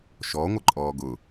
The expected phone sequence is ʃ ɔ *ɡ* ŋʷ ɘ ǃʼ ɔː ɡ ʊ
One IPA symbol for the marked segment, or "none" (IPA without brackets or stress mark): none